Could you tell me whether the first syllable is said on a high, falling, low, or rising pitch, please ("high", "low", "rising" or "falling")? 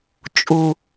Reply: low